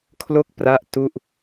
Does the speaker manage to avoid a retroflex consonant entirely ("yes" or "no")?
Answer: yes